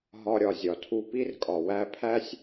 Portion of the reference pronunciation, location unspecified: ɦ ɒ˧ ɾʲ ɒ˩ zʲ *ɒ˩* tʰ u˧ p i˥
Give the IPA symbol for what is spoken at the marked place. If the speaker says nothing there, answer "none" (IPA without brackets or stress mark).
ɒ˩